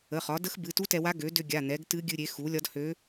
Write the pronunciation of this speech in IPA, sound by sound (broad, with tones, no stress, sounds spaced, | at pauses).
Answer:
ə˩˧˩ χ ɒ˩˥ d ə˧˥ x b ɨ˩˧˩ t u˧˥ t ɛ˧ w a˧˥ ɡ ø˩˥ d ʏ˧ ɡʲ a˩˧˩ n̪ ɛ˩˥ ɡ t ɨ˧˥ ɡʲ ɨ˧ ɾʲ e˩˥ x u˩˥ lʲ ɒ˧˥ d h ø˧˥